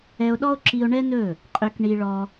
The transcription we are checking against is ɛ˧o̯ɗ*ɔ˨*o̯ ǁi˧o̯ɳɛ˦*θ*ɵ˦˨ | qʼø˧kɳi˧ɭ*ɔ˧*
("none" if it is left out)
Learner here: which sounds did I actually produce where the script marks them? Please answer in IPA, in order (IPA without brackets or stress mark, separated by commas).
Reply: ɔ˦, n, ɔ˧